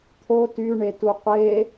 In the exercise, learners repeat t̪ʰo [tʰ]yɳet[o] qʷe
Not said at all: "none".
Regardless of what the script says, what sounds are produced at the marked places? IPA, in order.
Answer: t, u

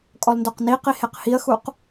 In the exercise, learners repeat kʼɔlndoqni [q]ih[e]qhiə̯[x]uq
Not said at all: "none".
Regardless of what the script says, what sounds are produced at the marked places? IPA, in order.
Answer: q, e, x

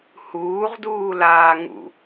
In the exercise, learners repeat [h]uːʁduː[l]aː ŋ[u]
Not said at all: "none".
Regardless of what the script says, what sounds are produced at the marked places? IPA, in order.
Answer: h, l, ṵ

